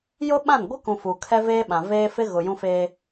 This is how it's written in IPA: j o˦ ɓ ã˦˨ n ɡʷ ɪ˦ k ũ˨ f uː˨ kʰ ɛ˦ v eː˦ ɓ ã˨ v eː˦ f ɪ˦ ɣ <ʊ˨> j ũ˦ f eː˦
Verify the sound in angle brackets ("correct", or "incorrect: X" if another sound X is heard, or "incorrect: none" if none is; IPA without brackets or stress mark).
correct